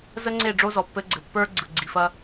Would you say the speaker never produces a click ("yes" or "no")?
no